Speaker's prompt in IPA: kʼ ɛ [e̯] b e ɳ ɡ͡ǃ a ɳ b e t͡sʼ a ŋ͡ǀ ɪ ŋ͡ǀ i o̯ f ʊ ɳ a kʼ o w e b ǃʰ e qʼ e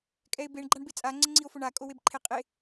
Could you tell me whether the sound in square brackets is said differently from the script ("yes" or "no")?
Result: no